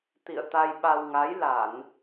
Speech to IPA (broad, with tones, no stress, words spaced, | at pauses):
t̪ḭ˧˨ə̯ t̪a˧jɓa˧w ŋa˨˦jla˧˩˨n